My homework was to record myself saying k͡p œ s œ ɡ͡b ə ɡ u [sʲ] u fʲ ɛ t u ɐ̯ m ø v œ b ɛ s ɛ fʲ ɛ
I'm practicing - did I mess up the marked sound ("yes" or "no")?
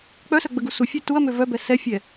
yes